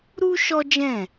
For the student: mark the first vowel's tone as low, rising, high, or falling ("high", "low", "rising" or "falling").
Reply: high